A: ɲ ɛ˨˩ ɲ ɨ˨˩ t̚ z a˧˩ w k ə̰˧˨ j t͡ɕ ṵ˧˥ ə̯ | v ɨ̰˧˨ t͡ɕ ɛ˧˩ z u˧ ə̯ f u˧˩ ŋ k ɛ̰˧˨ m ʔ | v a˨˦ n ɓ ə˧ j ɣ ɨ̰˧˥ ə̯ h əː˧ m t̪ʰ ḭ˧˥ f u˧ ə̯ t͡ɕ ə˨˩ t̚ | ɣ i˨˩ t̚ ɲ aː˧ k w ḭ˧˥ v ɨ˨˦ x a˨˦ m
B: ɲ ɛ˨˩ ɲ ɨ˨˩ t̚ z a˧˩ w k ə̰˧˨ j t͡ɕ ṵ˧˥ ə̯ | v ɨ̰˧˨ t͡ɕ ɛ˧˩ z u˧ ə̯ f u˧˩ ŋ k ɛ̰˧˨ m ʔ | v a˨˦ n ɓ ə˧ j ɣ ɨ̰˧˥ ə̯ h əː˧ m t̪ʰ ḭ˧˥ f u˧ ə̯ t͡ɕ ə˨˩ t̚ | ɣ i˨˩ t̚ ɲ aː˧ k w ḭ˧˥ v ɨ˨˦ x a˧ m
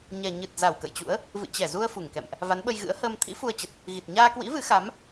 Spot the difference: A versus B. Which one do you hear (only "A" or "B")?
A